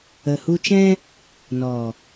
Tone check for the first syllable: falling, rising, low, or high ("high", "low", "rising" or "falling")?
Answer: low